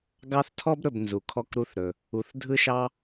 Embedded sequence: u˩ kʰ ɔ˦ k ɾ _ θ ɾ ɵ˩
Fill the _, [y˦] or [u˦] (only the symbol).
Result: u˦